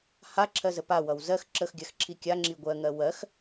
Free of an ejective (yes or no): yes